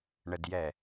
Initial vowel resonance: oral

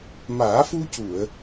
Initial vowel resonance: oral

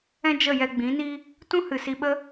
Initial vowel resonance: nasal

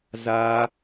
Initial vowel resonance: oral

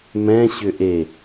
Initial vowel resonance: nasal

